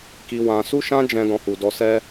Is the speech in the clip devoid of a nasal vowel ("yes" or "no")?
no